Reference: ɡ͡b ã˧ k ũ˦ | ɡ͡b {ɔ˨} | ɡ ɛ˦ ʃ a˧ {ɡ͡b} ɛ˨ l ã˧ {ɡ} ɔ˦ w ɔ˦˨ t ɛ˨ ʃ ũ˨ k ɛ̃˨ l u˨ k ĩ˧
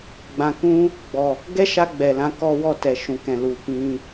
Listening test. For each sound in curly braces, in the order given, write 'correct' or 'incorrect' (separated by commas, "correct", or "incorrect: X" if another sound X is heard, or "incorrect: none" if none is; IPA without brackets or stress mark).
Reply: correct, correct, incorrect: k